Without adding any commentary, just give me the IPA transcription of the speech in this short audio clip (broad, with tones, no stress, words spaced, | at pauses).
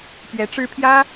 pɥɛ˧˥ʈ͡ʂɻ̩˥ pʰjä˥